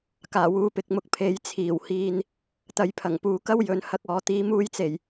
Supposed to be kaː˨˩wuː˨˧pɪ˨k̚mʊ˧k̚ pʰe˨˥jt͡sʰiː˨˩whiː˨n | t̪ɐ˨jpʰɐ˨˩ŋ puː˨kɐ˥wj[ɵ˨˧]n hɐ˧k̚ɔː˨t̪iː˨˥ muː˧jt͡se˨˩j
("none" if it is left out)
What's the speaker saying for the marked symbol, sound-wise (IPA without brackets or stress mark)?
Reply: ɵ˨˧